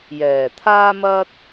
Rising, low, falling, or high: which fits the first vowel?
low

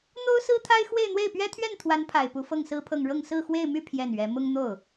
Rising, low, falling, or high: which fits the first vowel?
high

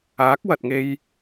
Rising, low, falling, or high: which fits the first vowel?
rising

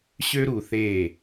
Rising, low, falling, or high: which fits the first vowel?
high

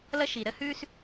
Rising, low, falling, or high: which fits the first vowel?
high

